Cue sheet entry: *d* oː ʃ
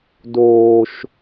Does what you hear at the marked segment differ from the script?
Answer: no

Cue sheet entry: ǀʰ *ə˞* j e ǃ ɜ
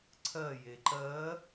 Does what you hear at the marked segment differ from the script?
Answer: yes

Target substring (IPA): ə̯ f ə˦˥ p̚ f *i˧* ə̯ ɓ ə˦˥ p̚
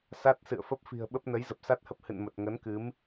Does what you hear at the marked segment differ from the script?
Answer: yes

